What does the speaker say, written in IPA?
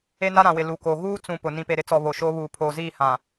e˦ n a˦ ɾ ã˨ w ɪ˨ l u˨ k o˨ ɣ uː˦ t͡s ũ˨ p ʊ˨ n ĩ˨ p e˨ ɾ ɪ˦ t͡s ɔ˨ β o˨ ʃ oː˦ β uː˨ pʰ oː˨ z iː˦˨ h ã˨

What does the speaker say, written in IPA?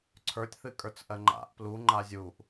ǀʰ ə˞ tʲ θ ɨ kʼ ə˞ t͡s ʔ ɜ ŋ͡ǃ a̰ ʔ p l u ŋ͡ǃ a zʲ u ʔ

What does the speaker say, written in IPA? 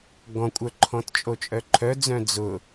ɡ ɔ̃ kʷʼ œ ǃʰ ɔ̃ t t͡ʃʼ o t͡ʃʼ œ ǃʰ œ d͡z œ̃ d͡z ʊ

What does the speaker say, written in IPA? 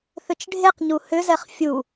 θ ʏ t͡ʃ ɖʱ e q ɲ u h ʏ z ɛ χ fʲ u

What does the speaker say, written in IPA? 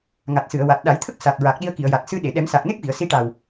ŋ a˨˩ t̚ s ɨ˨˩˨ ə̯ w a˨˩ t̚ ɗ a˨˩˦ j t̪ʰ ə˦˥ k̚ s a˨˩ t̚ ɹ a˨˩ k̚ ɗ i˧ ə̯ k i˨˩˨ ə̯ j a˨˩ t̚ s ɨ˧ ɗ e˨˩˨ ɗ ɛ˨˩˦ m s a˨˩ k̚ n e˦˥ k̚ v i˨˩˨ ə̯ s i˧˥ ʈ a˨˩ w

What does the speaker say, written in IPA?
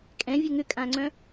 kʼ ɛ̃ vʲ ɘ ŋ ʏ kʼ ã ŋ͡ǀ œ̃

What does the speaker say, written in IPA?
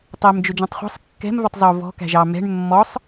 tˤ ɛ m d͡ʒ ɵ d͡ʒ ɑ̃ tˤ χʷ æ̤ sˤ kː ɛ̤ m v ɵ tˤ zˤ o v ɔ̤ k æ̤ ʒ ɑ m ɛ̤ ɳ mː ɔ sˤ

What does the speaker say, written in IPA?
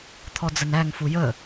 t̪ʰ ɔ d͡z ə n æ ŋ f u j ə

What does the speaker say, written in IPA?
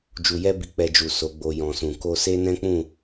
d͡ʒ u˧ j ɛ˦ b i˧ k͡p ɛ˧ d͡ʒ u˨ s o˨˦ ɡ͡b o˧ j ɔ̃˨ s ũ˨ k o˧ s e˦ n ɛ̃˦ k͡p ũ˦˨

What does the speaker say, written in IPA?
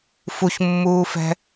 f u ç mː uː f ɛ̤

